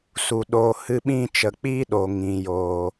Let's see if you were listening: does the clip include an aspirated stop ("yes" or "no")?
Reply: no